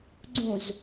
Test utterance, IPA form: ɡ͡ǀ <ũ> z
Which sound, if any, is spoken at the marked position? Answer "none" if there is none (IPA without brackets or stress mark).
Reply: ũ